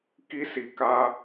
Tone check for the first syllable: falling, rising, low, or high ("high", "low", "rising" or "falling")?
high